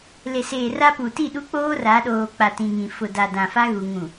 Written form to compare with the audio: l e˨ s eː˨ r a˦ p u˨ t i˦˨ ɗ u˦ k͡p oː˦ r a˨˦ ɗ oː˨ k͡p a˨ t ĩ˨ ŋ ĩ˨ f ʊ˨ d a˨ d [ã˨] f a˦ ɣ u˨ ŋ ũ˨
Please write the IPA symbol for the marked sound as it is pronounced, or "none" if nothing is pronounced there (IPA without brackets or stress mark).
ã˨